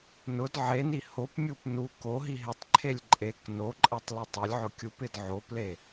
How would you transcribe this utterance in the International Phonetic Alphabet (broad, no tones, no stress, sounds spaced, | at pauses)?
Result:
n ʊ d ʕ e n i h o p mʲ u p n u k o ɦ i ɦ ɪ tˤ ǃʰ e lʲ ǃʼ e k n o ǃʼ ɛ tˤ l i tˤ ʊ lʲ ʕ ʊ kʲ u p ɪ d ʕ o p l e